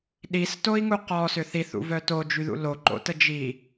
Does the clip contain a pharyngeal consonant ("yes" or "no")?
no